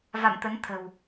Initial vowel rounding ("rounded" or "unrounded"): unrounded